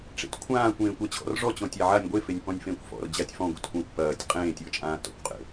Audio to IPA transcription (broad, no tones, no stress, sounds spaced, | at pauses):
ʈ͡ʂ ḛ t kʷʰ ãː kʷ ẽː kʷ a t͡ɕʰ ɔ̰ r ʐ ɔ t͡ɕ ɔ̃ tʲ a ʕ a nʲ ɡʷ e f e nʲ p ɔ̃ nʲ f ẽː kʷ f ɔ̰ r d͡ʑ a tʲ f ɔ̃ ɡʷ ḛ t kʷ ã kʷ p ɐː tʲ qʼ ẽː tʲ ɔ t͡ʃʼ ãː t ɔ̰ kʷ qʼ ḛ